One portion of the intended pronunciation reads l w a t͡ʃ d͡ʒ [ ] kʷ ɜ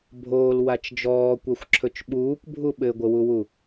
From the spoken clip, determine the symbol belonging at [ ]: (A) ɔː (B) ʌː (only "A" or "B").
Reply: A